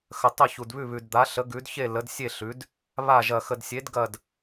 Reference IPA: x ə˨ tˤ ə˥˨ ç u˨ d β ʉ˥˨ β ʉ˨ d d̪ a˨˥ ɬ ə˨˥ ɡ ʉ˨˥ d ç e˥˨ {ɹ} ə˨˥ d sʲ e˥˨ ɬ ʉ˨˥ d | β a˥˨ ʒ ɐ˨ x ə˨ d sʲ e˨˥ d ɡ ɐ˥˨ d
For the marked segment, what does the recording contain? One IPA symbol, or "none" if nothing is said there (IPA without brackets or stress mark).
l